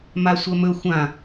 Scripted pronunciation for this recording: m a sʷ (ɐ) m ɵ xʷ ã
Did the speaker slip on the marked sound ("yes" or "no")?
no